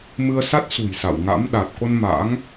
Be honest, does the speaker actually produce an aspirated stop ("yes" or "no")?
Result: no